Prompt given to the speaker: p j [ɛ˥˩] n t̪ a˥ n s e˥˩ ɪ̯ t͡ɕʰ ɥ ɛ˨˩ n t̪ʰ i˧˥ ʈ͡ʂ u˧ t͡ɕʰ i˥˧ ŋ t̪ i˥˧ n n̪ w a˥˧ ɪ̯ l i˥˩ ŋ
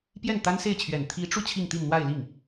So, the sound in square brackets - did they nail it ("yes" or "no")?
yes